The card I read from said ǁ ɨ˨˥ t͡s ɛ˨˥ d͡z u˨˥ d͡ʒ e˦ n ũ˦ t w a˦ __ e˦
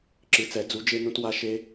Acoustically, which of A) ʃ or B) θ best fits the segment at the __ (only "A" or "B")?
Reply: A